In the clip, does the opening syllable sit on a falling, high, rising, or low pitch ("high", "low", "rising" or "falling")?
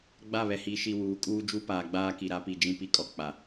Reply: falling